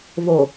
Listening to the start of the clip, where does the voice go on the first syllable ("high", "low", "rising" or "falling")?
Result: low